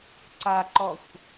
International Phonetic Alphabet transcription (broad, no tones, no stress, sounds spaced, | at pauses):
ǀ a ǃ ɔ xʷ